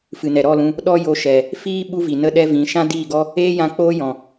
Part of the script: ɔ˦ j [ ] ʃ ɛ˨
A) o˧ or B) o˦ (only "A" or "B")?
A